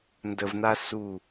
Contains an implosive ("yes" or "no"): no